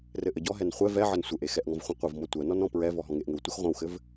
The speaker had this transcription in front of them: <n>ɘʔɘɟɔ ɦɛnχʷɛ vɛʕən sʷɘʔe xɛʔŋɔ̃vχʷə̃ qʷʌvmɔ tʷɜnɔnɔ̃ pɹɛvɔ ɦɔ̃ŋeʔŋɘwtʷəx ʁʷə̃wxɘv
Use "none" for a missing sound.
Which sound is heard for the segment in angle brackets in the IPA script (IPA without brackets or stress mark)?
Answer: r